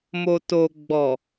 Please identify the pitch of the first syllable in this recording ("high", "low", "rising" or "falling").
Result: low